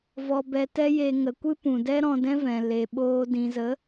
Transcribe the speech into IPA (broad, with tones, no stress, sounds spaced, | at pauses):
v ɔ˧ b ɛ˧ t ɛ˦ j e˧ ŋ ə˧ kʷ ɨ˦ p ũ˨ d ɛ˦ ɾ ɔ̃˧ d ɛ̃˦ v ɛ̃˨ l e˨ ɓ oː˧ d ĩ˨ z ə˨˦